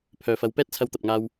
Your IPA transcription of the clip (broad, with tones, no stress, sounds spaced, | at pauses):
pʰ œː˨ f ɐ˨˧ w p ɛː˥ t̚ t͡sʰ ɐ˧ w t̪ ɐ˨ p̚ ŋ aː˧ w